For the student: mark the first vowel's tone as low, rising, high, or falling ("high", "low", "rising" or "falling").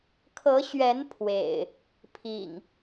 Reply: rising